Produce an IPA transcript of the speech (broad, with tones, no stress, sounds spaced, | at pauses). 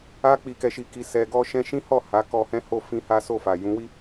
a˦ k͡p i˧ k ɛ˧ ʃ i˧ k i˧ s ɛ˧ ɡ ɔ˦ ʃ ɛ̃˦ ʃ ĩ˦ h ɔ˦˨ h a˨˦ k ɔ˧ h ɛ̃˦ h o˦˨ f ĩ˧ h a˦ s o˦˨ f a˨ j ũ˨˦ w i˦